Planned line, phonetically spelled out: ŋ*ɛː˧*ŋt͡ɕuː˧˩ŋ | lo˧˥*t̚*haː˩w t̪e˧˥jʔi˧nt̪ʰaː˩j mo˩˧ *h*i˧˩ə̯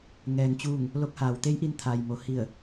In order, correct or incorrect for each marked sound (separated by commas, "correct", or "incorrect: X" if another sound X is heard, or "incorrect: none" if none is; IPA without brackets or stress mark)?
incorrect: ɛː˩, incorrect: k̚, correct